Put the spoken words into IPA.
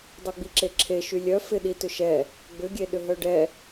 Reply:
dˤ œ ɡ͡b i ǁ e ǁʰ e ʃ y lʲ œ f ɪ ɗ i t ʏ ʃ ɛ | ɡ͡b ʏ ɡʲ e ɗ ʏ ɦ œ ɖ ɛ

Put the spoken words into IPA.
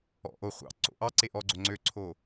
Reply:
ɔ̰ ʔ o χʷ ɑ̰ ǀ o̰ ʔ ɑ ǀ e ʔ ɔ ɡ͡ǀ o ŋ͡ǀ ø ǀʰ o

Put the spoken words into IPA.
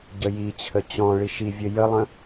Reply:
ɟ ə j i t͡ɕʰ ə t͡ɕ ɔ̃ ɭ i ʃ i vʲ ə j ə lˠ ə̃

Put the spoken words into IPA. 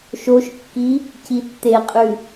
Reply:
ʃ o ʃ kː i | c i tː e qʼ ʉ

